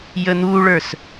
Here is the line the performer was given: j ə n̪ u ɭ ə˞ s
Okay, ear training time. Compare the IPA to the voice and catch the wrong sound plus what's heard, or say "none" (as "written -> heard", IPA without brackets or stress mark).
none